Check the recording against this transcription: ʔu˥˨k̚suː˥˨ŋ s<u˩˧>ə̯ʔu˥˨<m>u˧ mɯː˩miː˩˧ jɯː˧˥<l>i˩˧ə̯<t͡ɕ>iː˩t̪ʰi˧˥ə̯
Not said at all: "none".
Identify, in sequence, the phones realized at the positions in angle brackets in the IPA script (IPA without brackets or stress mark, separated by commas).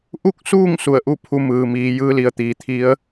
u˧˩, pʰ, l, t̪